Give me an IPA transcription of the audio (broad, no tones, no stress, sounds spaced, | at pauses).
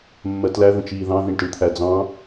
mː ɜ t l æ ð ə̃ t͡ʃ iː ð ɑ̃ ð ĩ ɳ t ə ɳ t̪ʰ æ d͡z ɑ̃